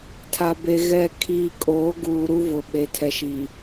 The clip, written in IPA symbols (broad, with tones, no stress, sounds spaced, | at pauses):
tʰ a˨ b e˨ ɣ ɛ˨ kʰ iː˨ kʼ oː˨˦ ɡ uː˨ ɾ u˦ v ʊ˨ ɓ e˨ tʰ ɛ˨ ʃ i˨